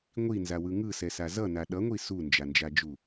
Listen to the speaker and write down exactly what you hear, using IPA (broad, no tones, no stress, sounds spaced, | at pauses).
ŋʷ i n z a w ɯ ŋ ɯ s ɛ s a z ʌ n a ɗ ʌ ŋʷ i s u n d͡ʒ a n d͡ʒ a d͡ʒ u